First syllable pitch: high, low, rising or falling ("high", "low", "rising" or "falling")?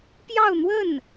falling